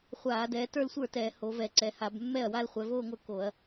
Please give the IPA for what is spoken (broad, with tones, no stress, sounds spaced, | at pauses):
χʷ aː˧˩˧ d ɛː˩˧ t ə˞˥˧ l sʷ ə˞˥˩ t ɛː˧˩˧ h o˩˧ v ɛ˧˩˧ ǀ ɛ˩˧ h a˧˩˧ b mː ɛ˥˩ ɐ̯ w a˥˧ l χʷ ɛ˩˧ v oː˥˧ ŋʷ ə˞˥˩ k o˧˩˧ ɐ̯